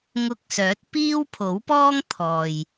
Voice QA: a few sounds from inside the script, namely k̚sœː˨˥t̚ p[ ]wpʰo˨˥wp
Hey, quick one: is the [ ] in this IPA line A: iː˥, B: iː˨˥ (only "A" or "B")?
A